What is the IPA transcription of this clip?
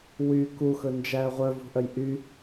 w y k u x ɵ n d͡ʒ æː ʁʷ œ v ṳ ʔ œ j ʔ y

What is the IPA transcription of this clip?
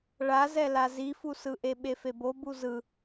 ɭ a z ɛ l a z i f u s ɯ ʔ e ɓ e f e b o b u z ɯ

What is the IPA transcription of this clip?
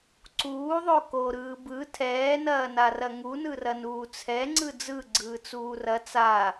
ǀ uː ðˤ o k o ɾ ɯː b ɯ tʰ ɛː n ɐː n a r ɐ ŋ u n ɯ r ɐ n uː t͡sʰ ɛ ŋ͡ǀ ɯ d͡z ɯ ɡ͡ǀ ɯː t͡s uː r ɐ t͡s a

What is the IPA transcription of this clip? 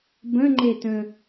b ə̃ ŋ͡ǃ e t ə̃

